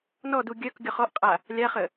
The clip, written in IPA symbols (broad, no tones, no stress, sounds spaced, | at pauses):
n ɔ d u ɡʲ œ k ɡʲ ɔ χ ɔ ʔ qʼ a | lʲ a χ ə